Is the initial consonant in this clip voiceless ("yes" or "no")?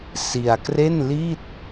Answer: yes